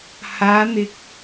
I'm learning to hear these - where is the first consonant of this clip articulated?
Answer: throat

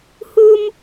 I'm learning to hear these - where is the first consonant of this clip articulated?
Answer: throat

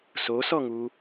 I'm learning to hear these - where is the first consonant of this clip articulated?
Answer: tongue tip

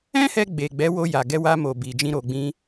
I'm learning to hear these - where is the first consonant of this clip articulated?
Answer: throat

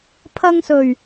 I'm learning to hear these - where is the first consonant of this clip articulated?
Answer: lips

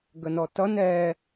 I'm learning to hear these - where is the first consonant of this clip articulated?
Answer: velum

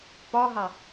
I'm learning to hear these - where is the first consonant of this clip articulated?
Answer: lips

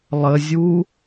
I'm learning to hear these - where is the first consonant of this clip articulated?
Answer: tongue tip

